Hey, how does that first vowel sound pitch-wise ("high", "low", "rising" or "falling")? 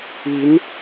rising